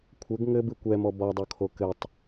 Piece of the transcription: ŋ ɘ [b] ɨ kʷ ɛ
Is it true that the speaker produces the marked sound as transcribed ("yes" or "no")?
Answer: yes